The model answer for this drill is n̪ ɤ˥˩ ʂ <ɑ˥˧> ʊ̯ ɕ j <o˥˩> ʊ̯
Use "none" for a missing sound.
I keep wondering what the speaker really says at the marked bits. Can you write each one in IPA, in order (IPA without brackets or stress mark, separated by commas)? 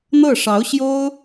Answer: ɑ˧˥, o˥